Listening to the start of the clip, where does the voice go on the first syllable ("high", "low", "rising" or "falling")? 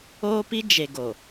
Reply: high